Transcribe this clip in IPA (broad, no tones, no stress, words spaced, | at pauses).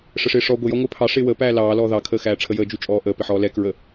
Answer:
ʂəʂɪːʂɔ ɡʷɪ jɔŋʷɪːpʰɑ ʂɪːwəː pæːlɑː lɔːðɑ kʰəːxæːʈ͡ʂʰəjəː d͡ʒut͡ʃʼɔːʔəː pɪħɔːlɛ kɹə